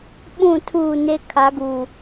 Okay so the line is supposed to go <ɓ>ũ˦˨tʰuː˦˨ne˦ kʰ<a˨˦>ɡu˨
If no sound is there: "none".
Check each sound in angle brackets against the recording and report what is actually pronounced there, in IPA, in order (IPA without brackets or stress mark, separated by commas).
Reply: ɓ, a˨˦